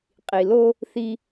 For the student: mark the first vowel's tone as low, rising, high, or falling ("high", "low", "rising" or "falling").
low